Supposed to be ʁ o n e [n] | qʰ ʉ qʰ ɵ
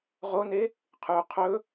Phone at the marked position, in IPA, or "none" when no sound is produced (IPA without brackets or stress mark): none